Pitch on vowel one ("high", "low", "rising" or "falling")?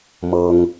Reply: low